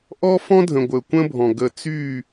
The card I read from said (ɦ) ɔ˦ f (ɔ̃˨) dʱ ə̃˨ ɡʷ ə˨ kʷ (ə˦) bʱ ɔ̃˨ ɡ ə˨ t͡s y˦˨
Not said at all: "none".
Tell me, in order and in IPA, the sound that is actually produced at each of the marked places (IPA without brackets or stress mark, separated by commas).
ʔ, ɔ̃˦, ə̃˦